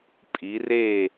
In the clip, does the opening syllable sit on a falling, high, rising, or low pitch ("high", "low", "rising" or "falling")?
rising